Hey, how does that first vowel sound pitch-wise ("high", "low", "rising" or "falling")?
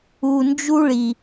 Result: low